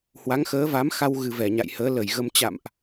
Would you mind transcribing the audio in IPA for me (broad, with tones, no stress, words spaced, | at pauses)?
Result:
hwa˨˦ŋxəː˨˦va˨˦mxa˧w ɣɨ˨˩vɛ˧˩ɲa̰˧˨j həː˨˦lə˧˩jɣə˧m t͡ɕa̰˧˨mʔ